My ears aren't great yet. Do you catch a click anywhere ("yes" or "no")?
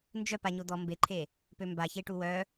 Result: yes